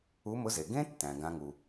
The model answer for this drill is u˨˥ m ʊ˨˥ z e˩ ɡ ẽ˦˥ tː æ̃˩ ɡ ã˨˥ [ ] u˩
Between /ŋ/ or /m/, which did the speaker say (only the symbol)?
ŋ